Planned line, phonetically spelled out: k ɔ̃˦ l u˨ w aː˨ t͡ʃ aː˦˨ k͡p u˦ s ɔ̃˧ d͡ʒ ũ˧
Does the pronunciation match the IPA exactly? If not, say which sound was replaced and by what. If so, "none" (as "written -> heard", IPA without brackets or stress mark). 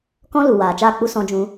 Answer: none